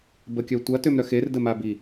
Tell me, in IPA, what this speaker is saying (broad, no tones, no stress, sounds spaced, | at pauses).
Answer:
b ə kʲ œ tʷ ɐ t ø m ɾ œ x e r d ə m a b i